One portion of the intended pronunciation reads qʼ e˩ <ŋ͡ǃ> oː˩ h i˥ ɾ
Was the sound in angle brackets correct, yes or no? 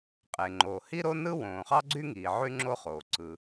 yes